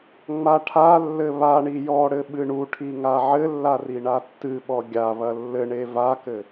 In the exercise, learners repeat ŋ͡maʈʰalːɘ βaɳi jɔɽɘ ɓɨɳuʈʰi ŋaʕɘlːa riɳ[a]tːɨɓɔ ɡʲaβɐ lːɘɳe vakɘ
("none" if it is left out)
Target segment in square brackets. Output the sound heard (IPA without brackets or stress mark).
a